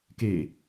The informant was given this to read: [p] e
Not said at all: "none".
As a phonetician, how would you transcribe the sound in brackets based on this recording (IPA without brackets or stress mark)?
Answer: k